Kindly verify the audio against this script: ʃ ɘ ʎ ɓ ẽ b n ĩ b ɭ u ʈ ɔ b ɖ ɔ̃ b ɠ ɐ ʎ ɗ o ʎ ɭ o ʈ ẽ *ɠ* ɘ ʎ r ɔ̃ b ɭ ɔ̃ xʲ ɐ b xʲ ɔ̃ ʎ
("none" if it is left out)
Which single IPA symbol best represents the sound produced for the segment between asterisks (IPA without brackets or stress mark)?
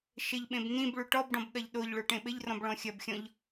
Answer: ɓ